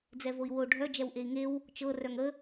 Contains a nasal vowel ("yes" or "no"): no